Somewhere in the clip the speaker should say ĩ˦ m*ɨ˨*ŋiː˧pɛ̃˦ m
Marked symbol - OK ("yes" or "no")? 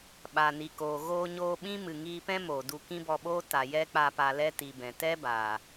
yes